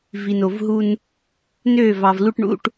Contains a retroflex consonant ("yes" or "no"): yes